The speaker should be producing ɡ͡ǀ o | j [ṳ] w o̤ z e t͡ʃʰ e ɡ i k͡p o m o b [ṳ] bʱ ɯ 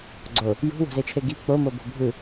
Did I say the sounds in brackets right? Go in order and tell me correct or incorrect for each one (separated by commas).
correct, incorrect